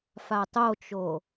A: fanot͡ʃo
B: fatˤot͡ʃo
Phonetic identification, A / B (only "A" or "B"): B